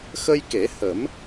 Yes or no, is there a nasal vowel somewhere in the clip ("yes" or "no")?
no